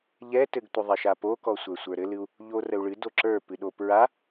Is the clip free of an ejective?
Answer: yes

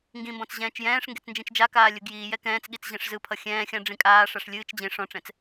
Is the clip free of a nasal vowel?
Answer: no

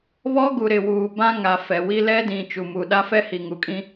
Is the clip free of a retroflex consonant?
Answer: yes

